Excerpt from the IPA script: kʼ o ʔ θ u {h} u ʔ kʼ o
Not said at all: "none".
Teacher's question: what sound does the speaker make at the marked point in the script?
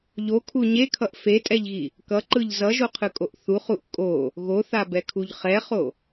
χ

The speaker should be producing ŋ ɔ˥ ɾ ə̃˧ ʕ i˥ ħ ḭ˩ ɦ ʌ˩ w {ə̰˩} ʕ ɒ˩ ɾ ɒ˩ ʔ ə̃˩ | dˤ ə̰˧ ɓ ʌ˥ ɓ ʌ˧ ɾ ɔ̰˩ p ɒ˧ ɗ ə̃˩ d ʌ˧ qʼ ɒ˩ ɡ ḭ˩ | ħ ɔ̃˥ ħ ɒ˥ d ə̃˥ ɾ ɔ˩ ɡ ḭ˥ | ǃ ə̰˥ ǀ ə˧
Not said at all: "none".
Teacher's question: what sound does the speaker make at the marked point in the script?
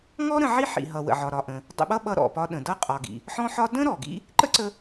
ə̰˩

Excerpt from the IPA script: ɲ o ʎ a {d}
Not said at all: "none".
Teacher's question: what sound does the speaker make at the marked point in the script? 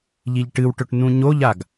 ɡ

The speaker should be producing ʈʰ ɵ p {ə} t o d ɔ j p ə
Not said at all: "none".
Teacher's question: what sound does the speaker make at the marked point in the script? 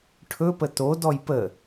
ə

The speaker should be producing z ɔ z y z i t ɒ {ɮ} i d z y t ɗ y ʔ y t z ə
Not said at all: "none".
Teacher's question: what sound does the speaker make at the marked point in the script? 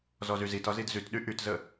z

